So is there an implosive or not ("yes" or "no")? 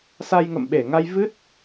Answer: yes